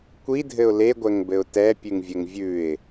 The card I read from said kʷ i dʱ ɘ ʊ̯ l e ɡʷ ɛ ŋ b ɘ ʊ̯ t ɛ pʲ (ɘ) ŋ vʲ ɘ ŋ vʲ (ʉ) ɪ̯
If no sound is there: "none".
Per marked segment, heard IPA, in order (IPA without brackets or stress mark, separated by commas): ʉ, ʉ